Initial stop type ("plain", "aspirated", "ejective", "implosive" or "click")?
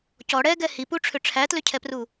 plain